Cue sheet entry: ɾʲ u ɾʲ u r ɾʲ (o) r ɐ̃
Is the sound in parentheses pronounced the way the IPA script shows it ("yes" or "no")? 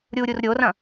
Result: yes